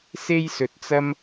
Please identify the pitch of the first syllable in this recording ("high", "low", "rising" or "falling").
high